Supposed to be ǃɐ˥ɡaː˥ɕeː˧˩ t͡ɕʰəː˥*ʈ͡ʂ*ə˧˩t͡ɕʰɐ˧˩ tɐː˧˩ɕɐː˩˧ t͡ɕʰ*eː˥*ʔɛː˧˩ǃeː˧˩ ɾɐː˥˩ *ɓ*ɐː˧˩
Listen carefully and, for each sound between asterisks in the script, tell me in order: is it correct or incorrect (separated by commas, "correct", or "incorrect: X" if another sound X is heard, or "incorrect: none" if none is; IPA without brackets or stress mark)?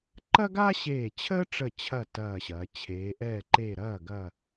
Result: correct, incorrect: eː˩˧, incorrect: ɡ